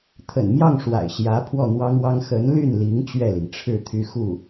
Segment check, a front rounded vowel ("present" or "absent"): present